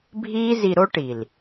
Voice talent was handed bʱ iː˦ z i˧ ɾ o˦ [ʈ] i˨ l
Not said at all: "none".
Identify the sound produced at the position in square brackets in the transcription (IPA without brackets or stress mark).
ʈ